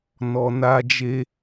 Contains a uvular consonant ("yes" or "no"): no